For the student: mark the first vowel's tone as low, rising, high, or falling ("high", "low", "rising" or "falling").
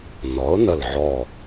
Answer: rising